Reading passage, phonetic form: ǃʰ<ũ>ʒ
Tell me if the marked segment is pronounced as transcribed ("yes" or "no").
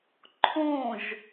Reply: no